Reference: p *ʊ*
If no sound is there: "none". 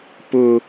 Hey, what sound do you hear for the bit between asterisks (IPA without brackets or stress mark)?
ʊ